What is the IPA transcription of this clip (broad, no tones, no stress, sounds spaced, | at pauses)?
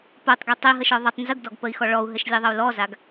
p o tˤ ɡ i tˤ i ɦ ə ʃ ɔ ðˤ ɪ tˤ n z ə ɡ d ɔ ɡ p ə i̯ x ɔ ɭ ɔ u̯ ɦ ɘ ʃ lʲ ɛ ðˤ ə u̯ l ɔ z a ɡ